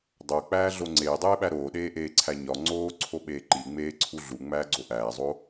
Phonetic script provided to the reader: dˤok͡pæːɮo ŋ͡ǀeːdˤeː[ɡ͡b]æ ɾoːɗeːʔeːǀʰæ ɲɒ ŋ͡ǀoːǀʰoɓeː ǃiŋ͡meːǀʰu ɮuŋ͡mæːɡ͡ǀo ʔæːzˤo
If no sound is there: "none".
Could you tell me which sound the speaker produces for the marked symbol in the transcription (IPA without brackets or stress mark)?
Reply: ɓ